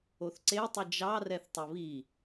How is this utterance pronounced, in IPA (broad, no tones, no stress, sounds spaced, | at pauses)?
o θ ǀ e tˤ i d͡ʒ ɑ r ɛ θ tˤ o β i